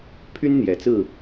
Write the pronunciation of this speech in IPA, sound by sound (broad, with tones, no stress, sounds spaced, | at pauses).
pʰ y˦ n n̪ j ɛ˨˩ t͡s ɹ̩˥˨